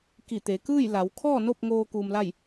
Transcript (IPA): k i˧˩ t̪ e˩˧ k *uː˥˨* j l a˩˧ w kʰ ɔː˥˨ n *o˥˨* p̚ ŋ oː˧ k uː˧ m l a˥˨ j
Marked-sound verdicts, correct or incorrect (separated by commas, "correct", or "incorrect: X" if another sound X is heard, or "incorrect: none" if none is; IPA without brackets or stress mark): incorrect: ɯː˥˨, correct